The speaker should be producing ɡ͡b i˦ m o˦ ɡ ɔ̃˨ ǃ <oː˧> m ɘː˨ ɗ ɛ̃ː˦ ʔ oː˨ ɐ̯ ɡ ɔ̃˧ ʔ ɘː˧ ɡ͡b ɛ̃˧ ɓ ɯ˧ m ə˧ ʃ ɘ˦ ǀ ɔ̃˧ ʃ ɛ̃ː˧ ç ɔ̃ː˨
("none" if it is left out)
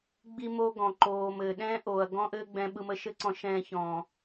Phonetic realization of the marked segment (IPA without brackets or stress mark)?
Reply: oː˨